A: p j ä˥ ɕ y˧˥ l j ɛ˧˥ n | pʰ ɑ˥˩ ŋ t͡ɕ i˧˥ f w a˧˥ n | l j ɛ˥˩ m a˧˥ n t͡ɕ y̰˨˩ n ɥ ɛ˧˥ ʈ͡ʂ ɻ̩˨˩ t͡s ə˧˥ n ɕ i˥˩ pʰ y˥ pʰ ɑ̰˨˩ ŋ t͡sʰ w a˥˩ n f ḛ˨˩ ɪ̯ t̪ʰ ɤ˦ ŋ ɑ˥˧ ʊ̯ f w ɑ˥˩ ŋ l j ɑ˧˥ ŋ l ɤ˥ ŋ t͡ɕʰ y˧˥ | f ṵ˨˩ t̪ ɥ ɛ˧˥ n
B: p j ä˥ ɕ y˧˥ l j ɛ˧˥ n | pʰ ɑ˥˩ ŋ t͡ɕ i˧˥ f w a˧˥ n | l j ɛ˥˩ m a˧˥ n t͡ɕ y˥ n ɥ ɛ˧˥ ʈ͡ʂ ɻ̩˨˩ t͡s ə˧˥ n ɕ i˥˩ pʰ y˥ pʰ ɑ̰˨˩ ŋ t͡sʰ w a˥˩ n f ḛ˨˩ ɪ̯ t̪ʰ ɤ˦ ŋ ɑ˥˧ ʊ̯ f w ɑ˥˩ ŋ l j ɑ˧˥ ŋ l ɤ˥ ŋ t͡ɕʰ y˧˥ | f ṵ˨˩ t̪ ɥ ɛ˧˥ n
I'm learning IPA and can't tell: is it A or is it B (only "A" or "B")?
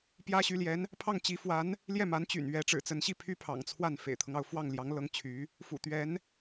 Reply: A